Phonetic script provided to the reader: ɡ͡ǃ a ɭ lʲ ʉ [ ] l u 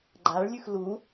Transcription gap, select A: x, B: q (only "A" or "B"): A